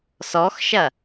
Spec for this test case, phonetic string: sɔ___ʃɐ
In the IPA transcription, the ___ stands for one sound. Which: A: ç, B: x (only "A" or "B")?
B